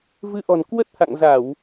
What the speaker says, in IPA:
v ɨ˧ ʔ ɔ̤˨˩ n k w ə˦˥ t̚ h a̰˧˨ ŋ z a˧˩˨ w

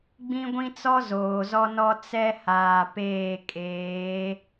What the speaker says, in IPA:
ɡ͡b ĩ˦ ɡʷ ĩ˦ t͡s ɔ˦ z oː˨ z ɔ˦ n ɔ˦ t͡s ɛ˦ h aː˨ p eː˦˨ kʼ eː˨˦

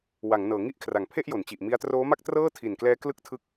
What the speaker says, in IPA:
w a˩˦ ŋ n ɤː˩˦ ŋ i˦˥ ʔ kʰ r a˩˦ ŋ pʰ e˥˩ ʔ j o˩˦ n t͡ɕ i˨˩ ʔ m i˧ a̯ t r oː˦˥ m a˥˩ k̚ t r ɤː˥˩ tʰ i˨˩ n k l ɛː˦˥ k l ɯ˥˩ k̚ tʰ ɯ˦˥ k̚

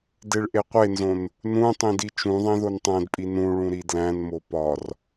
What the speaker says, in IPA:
d e ɭ ʔ e qʷ e n z õ n | n ũ tˤ ĩ d i t͡ʃ ũ ðˤ ẽ ð o n tˤ æ̃ d pʼ i n ũ ɭ ũ ɾ i d l æ̃ n m o p ɒ r

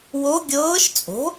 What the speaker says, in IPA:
w o˧˥ ɡʲ ɤː˧˥ ʃ t͡sʼ o̤˩˥

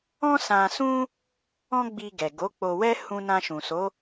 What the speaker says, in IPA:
ɔ̃˦ s ã˧ s ũ˦ | ɔ̃˦ ɡ͡b i˧ ɡ ɛ˨ ɡ o˨˦ k͡p o˧ w ɛ˦ h ũ˧ n ã˧ ʃ ũ˨ s o˨˦

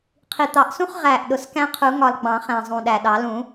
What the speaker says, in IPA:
qʰ i˨˩ t̪ ɑ˨˩˦ ʔ s ũ˦ χ ʁ æ˨˩ ʔ ɗ ʊ˨˩ s k æ̃˦ qʰ u˨˩˦ ŋ ɒ˨˩ l ɡ͡b ɑ̃˨˩˦ χ æ̃˨˩ zˤ ũ˨˩ ɗ æ˨˩ ɗ ɑ˨˩˦ l ũ˨˩˦

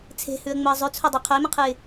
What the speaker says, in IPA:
t͡sʰ e̤ h ʉ ə̯ ŋ͡m ʊ ə̯ zˤ ʉ t͡sʰ o dˤ e qʰ ʊ ɪ̯ m ə̃ qʰ ɨ ɪ̯

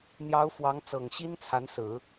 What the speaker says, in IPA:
n̪ j ɑ˧˥ ʊ̯ f w ɑ˧˥ ŋ t͡s ɤ˨˩ ŋ ɕ i˥ n t͡sʰ a˧˥ n s ɹ̩˨˩˦

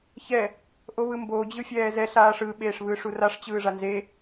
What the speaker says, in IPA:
ç ɛ | ʔ o β ɯ m b o d͡ʑ ɯ fʲ ɛː z ɛ ɬ aː ʂ ɯ ɓ eː ʂ β ɯː ʂ u r a ʂ t͡ɕ ɯː ʐ a n z e

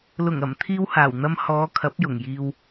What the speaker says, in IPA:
l ʊ˨˩ ŋ ɐ˨˩ m t̪ʰ iː˧ w h aː˨˩ w n̪ ɐ˧ m h ɔː˨˧ kʰ ɐ˨˥ p̚ j ʊ˨˩ ŋ j iː˧ w

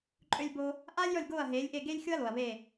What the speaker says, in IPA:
ǃʼ ø˧ lʲ b o˧ | ʔ aː˥ lʲ j ɔ˥˩ lʲ ɡ oː˥˩ ɐ̯ ɦ eː˩˥ lʲ ʔ e˥˩ ɡ e˥ lʲ xʲ o˥ ɐ̯ l o˩ ɐ̯ β e˥˩

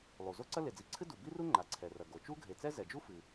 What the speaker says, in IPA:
lˠ u˩ z o˥ ǀ ɐ˥ l e˩ d͡z i˩ ǀʰ ɨ˥ d u˩ b i˥ r u˥ ŋ͡ǃ a˩ ǀʰ ɛ˩ r ɐ˩ ɡ o˩ t͡ʃ u˥ ɡʱ e˩ t͡s ɛ˥ z ɛ˩ d͡ʒ u˥ f ɨ˩

